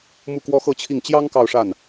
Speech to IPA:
mu˥˩kwɔ˥xɤ˥t͡ɕʰi˥˩ŋ t͡ɕjɑ˥ŋ kɑ˥˧ʊ̯ʂa˥˩n

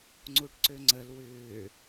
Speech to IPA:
ŋ͡ǀuʈǀøŋ͡ǀəl wʏː

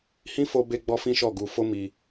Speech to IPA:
hĩ˦ fo˧be˧ ɡ͡bɔ˦fĩ˦ʃɔ˦˨ ɡu˧fo˦ mi˧

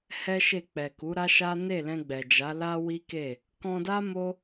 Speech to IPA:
hɛ˦ʃe˦˨ k͡pɛ˨ku˨˦ɾa˦ ʃa˦ ne˦˨lɛ̃˧ɡ͡bɛ˨d͡ʒa˨˦ la˦ wi˦ke˦˨ | kɔ̃˧da˦ mo˦

